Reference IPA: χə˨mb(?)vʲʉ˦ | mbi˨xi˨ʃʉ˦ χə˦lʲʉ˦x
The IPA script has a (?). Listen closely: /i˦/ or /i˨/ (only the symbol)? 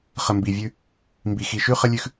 i˨